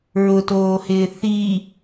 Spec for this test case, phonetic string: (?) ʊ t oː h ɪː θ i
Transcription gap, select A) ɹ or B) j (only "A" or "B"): A